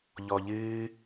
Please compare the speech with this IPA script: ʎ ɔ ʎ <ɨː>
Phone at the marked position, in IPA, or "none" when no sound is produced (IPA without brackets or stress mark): ɨː